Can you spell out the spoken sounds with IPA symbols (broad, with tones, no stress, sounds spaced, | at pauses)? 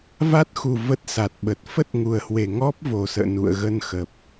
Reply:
v a˦˥ t̚ x u˨˩ v ə˦˥ t̚ s a˨˩ t̚ ɓ ə˨˩ t̚ f ə˦˥ t̚ ŋ u˨˩ ə̯ h w e˨˩ ŋ ɔ˦˥ p̚ v o˨˩ s ə̰ː˧˨ n ṵ˧˨ ə̯ ɣ ə˧ n x ə˨˩ p̚